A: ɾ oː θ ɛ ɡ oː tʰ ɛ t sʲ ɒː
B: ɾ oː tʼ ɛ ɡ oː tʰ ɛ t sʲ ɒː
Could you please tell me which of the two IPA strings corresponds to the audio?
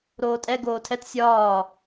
B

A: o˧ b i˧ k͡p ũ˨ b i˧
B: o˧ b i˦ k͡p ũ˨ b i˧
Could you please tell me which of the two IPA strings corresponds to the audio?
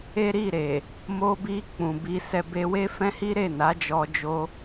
A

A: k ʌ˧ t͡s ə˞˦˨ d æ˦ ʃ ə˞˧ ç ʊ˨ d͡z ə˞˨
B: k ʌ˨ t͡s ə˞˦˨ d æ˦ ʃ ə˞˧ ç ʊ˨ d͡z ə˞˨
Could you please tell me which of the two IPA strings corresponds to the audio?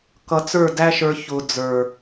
A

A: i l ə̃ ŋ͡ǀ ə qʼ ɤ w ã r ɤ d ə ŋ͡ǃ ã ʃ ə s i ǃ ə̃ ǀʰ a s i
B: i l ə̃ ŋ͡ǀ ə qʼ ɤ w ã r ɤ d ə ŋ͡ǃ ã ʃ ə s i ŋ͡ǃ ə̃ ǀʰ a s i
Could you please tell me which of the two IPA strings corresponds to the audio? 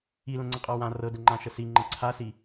B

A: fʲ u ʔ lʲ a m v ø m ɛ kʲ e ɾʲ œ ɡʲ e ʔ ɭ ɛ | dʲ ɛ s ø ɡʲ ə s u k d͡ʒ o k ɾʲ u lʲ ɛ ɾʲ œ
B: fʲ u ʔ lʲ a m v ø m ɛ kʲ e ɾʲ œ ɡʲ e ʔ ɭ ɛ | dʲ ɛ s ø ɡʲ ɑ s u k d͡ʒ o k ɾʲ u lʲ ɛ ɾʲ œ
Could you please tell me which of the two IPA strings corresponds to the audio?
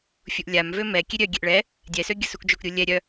A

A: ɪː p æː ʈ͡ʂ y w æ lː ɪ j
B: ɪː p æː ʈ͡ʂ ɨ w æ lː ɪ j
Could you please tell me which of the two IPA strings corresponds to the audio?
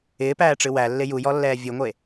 B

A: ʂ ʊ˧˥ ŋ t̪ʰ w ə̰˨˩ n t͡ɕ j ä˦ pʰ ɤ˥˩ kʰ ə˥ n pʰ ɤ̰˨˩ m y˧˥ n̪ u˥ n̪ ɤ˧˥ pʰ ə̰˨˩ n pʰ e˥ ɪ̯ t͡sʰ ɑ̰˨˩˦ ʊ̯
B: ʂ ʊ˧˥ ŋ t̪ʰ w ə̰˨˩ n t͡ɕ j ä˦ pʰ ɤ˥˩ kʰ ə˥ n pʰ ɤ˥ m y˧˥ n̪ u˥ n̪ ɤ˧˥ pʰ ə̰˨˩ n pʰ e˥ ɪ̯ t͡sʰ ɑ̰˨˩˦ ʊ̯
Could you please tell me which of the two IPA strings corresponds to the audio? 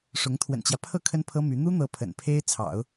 B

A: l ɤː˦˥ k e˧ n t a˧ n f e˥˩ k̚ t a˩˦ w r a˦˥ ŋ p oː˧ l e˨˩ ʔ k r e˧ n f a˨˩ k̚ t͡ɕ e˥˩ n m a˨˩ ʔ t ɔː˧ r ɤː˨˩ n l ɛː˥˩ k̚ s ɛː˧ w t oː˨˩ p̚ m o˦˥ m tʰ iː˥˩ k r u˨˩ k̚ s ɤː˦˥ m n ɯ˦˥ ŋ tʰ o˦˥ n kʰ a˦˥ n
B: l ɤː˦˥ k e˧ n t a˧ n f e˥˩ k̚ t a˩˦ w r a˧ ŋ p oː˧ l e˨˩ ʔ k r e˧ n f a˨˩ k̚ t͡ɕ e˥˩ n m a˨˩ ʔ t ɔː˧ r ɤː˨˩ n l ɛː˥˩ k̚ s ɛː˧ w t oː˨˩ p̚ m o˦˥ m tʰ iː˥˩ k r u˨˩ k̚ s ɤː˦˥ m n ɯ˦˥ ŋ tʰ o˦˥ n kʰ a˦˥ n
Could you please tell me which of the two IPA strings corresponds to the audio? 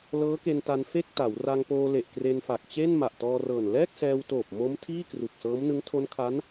B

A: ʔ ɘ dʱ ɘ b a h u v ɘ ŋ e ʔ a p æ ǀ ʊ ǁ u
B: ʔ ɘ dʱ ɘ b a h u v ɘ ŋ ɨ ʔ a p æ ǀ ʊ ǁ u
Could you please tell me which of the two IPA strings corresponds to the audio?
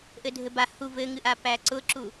B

